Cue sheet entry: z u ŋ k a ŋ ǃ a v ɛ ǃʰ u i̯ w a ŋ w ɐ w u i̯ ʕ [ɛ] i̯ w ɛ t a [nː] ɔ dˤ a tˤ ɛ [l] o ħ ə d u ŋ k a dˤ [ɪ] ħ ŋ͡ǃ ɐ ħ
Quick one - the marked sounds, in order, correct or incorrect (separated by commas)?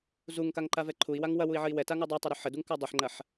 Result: incorrect, incorrect, incorrect, incorrect